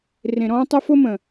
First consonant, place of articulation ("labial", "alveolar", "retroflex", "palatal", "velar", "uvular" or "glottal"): alveolar